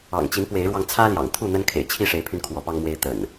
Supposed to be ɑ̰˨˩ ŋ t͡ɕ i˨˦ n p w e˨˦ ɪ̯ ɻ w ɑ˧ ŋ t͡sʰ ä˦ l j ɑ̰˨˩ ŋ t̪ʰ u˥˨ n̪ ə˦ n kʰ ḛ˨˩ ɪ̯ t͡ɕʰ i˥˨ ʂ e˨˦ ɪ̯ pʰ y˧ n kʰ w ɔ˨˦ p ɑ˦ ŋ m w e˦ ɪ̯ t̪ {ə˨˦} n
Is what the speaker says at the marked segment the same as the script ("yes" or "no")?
no